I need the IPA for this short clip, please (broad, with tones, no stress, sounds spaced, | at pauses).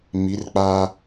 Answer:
m i˨˦ r k͡p aː˦